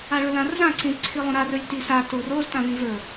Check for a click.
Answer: present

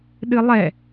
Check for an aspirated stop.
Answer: absent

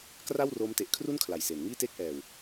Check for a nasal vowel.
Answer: absent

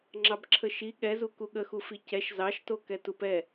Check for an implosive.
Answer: present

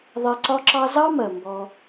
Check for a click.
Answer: present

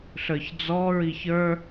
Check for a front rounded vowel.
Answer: absent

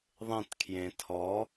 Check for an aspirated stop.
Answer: present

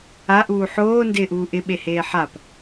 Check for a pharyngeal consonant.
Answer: present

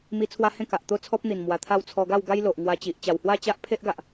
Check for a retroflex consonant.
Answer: absent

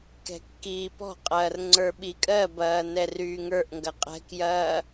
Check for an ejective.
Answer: present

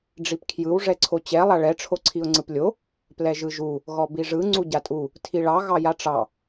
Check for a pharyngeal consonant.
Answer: absent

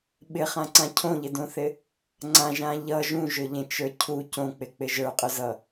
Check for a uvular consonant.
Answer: present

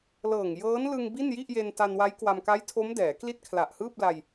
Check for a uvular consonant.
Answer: absent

